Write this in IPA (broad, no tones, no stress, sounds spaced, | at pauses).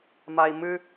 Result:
m a i̯ m ɨ